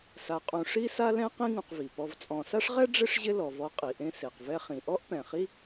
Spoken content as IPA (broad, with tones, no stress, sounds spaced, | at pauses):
s a˨ qʼ ũ˨ ʂ i˥ s a˥ l ɛ̃˥ q ĩ˦ ŋ ũ˨ q v i˩ p ɔ˨ v t͡sʼ ɔ̃˨ s a˥ ʂ ʁ ɛ˥ ɖ͡ʐ ɪ˥ ʂ ʑ ɪ˦ l ɔ˩ v ɔ˨ qʼ i˩ ʔ ẽ˦ s e˩ q v ɛ˦ χ ĩ˩ ʔ ɔ˥ ʔ p ɛ̃˩ χ i˥